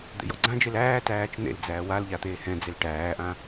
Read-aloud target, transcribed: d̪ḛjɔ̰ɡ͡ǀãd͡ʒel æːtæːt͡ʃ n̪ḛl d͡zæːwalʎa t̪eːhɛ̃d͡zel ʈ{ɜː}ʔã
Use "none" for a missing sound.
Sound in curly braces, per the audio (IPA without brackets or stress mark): æː